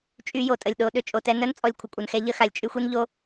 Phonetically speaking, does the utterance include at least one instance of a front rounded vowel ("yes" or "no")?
yes